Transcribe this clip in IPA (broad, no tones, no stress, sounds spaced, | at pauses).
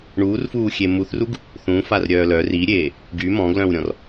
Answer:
ɳ uː r f uː xʲ e m u θ r u ɡ | θ ũ f a r ɾʲ œː l œ r i ɾʲ eː | ɡ y m ɔ̃ ɡ l œ̃ w ɾʲ ɔ̃ r